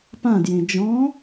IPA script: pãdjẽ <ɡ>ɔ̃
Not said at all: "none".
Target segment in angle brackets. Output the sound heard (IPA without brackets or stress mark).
d͡ʒ